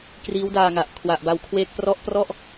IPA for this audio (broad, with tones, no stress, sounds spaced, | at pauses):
k r iː˦˥ w d aː˧ ŋ a˨˩ ʔ kʰ w a˨˩ ʔ b a˨˩ w kʰ w eː˦˥ k̚ p r ɔ˥˩ ʔ p r ɔ˥˩ ʔ